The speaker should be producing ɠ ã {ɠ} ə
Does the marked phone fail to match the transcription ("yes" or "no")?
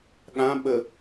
yes